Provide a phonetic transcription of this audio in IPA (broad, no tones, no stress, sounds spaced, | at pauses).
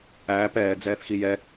æː p ɛː d͡z ɛː θ x i j ɛ